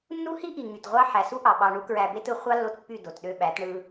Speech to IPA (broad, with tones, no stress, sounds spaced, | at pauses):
nː u˦ h i˦ ʔ i˨ ŋ y˨ t ʁʷ ɑ˦ ħ æ˨ s u˦ ʔ ɑ˨ ɓ ɑ˧ ɳ u˦ k ɹ æ˧ b e˦ t ɯ˧ χʷ ɑ˦ lː o˧ t pː y˦˨ d o˨ t ɗ ø˧ ɓ æ˨˦ t ɳ ɯ˧